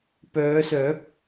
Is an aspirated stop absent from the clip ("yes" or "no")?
yes